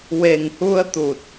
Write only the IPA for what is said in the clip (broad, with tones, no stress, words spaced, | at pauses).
we˨˩ŋhu˧ə̯t̪u˨˩t̚